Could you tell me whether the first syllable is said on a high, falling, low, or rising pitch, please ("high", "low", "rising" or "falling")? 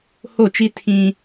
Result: falling